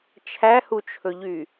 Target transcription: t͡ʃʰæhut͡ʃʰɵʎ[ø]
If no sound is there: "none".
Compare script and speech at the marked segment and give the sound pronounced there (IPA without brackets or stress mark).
y